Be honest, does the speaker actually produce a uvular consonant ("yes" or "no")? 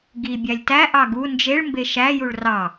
no